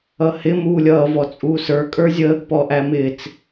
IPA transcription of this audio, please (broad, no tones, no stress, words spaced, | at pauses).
ʌhɪ muːlʲʌː vɔt͡sʼuːsə˞ kʼə˞zʲəːɡ pɔʔæmɪːt͡s